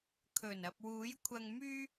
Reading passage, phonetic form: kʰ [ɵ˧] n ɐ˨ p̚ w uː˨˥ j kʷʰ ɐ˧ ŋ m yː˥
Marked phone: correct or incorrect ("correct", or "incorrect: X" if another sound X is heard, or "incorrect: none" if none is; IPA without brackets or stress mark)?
incorrect: ɵ˨˩